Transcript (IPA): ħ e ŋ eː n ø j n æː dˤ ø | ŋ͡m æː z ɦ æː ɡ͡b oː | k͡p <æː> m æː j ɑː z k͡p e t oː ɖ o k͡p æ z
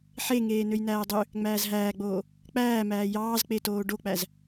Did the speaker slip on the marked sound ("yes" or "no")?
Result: no